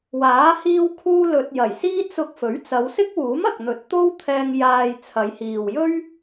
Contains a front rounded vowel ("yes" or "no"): no